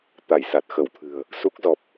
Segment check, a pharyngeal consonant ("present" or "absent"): absent